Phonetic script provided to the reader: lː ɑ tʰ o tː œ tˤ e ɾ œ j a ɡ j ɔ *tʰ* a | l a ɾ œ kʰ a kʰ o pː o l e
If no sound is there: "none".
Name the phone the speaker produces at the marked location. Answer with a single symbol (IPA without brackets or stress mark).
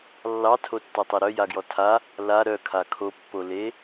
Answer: tʰ